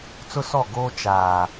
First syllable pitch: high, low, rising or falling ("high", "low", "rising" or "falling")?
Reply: high